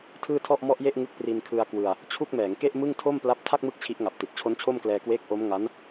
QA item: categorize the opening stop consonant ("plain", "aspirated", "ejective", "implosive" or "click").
aspirated